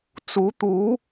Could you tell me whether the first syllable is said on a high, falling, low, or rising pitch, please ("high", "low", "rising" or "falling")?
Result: rising